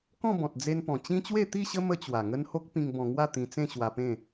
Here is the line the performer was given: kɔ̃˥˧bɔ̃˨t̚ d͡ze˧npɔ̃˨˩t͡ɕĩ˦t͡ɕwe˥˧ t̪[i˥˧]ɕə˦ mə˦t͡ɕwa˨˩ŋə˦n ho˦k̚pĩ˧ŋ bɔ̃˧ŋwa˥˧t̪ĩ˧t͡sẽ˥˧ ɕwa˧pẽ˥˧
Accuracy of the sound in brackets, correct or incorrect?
correct